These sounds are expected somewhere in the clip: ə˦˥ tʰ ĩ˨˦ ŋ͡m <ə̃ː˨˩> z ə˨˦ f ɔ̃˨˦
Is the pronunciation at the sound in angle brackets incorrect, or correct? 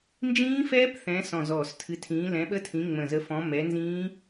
incorrect